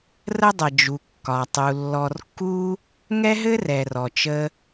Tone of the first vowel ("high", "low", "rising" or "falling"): high